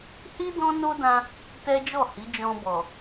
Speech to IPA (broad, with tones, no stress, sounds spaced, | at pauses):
h i˦ d ɔ̃˦ n o˦ d ã˧ | t ɛ˦ d͡ʒ ɔ˦˨ h i˨˦ d͡ʒ ɔ̃˧ b ɔ˨